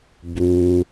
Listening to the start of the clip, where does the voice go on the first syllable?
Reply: low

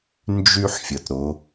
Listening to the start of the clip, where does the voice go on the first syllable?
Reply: high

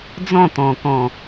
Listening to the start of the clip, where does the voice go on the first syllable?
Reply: falling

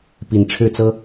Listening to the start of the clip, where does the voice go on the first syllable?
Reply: rising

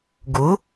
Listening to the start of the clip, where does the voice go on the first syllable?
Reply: rising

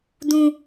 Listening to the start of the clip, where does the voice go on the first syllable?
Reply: high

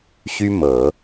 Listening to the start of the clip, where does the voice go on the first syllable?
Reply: high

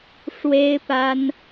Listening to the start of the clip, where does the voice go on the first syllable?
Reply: high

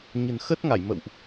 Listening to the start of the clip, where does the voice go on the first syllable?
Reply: low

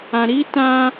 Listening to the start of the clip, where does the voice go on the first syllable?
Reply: low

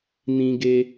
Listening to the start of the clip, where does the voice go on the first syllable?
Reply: high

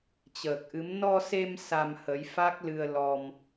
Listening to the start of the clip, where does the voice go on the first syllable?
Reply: low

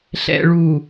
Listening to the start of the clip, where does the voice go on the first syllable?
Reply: low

